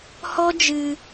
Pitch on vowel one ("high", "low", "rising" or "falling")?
high